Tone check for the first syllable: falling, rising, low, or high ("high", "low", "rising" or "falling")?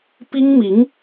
high